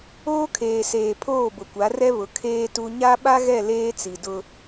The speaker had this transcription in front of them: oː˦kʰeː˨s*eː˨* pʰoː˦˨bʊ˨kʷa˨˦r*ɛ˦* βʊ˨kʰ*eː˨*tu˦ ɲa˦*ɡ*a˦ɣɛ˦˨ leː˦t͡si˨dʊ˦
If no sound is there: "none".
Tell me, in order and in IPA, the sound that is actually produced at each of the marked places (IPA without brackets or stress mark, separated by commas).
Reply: eː˨, ɛ˦, eː˦, ɓ